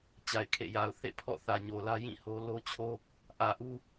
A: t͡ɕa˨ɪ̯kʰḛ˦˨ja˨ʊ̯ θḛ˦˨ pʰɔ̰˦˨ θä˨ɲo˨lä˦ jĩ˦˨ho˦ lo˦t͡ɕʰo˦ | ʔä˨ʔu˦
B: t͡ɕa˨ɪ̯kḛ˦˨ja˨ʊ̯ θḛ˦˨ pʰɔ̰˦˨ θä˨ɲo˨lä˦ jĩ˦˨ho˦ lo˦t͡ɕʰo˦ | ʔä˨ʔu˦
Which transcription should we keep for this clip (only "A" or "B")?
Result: A